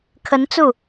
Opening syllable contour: rising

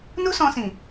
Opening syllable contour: high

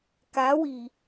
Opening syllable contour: rising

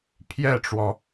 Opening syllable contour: falling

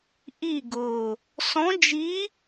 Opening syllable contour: falling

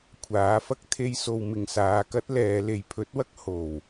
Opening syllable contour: rising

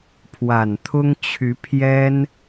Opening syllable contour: low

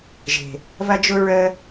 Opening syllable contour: low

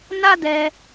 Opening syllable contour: high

